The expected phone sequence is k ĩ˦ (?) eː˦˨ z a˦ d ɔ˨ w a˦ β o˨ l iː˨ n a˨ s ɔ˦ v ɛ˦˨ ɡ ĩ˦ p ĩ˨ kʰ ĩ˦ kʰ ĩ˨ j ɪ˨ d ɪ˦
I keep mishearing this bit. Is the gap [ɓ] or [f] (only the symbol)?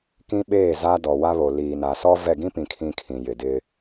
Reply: ɓ